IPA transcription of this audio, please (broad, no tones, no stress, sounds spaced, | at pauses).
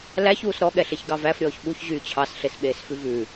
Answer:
l æ ç uː s ɾ ɔ ɠ ɛ ɬ e ç ɡ ɑ v æ f ɾʲ ɔː ç ɓ u ç ʑ yː t͡ɕʰ ɑ s ɬ e s ɓ eː s f ʉ v ʉ